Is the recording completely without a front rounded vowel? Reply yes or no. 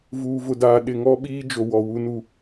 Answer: yes